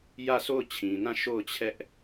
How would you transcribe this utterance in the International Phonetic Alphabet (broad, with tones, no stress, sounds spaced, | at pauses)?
j ä˦˨ sʰ o˦˨ ʊ̯ t͡ɕʰ ĩ˨ n ã˦˨ ʃ o˦˨ ʊ̯ t͡ɕʰ ɛ˦ ʔ